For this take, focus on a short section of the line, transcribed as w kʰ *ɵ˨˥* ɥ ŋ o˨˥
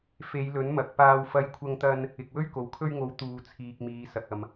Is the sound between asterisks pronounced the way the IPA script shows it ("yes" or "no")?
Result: no